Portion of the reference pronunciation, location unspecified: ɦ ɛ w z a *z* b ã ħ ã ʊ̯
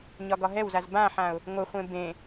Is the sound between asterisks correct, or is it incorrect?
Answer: correct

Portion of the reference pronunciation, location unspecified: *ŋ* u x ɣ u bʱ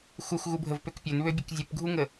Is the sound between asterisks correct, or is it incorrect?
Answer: incorrect: x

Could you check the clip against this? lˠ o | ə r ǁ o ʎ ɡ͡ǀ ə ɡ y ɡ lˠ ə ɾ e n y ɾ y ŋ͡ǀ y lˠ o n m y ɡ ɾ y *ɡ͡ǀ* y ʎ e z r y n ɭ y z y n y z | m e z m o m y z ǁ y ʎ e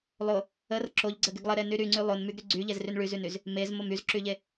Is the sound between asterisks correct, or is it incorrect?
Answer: correct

